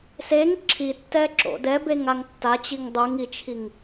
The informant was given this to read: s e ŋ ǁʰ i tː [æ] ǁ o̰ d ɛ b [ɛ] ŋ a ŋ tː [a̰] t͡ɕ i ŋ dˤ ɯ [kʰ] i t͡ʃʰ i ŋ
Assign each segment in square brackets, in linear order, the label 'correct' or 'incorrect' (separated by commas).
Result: incorrect, incorrect, incorrect, incorrect